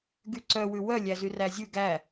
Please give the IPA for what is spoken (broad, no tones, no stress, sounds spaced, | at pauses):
ɡ y ǀ œ w ʉ w œ lʲ æ z y r æ zʲ ʉ ɡ æ